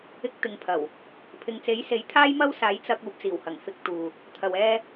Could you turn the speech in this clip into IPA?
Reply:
ɪ˧ k̚ t̪ ɪ˨ ŋ pʰ ɐ˨˩ w | pʰ ɪ˨ ŋ t͡s e˨˥ j s e˨˥ j t̪ʰ aː˥ j m ɐ˥ w s aː˨˥ j t͡s ɐ˧ k̚ uː˨ p̚ t͡s iː˨˩ w h ɐ˨˩ ŋ f ɪ˧ k̚ t̪ uː˨ | t̪ʰ ɐ˨ w ɛː˧

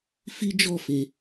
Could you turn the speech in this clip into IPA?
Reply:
f i˦ d͡ʒ ɔ˦˨ f e˨

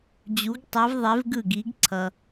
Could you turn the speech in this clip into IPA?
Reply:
d͡ʑ u˨˥ ɡ tˤ ɛ˨˥ v ðˤ e˨˥ v ɡ ɯ˥˩ ɡ i˨˥ ɡ ǀʰ ʌ˨

